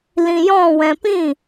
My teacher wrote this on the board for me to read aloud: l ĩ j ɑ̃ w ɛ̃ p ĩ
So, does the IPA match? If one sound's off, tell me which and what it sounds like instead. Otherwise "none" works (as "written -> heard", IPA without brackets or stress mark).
ɑ̃ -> ɔ̃